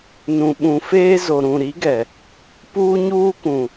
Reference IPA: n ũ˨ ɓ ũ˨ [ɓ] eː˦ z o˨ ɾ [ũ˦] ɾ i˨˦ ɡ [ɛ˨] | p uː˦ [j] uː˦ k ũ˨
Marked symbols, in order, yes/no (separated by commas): no, no, yes, no